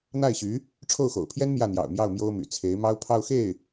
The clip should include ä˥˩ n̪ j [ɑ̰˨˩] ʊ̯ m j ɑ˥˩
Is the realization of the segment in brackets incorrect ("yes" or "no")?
no